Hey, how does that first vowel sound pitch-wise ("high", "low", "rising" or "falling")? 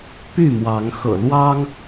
falling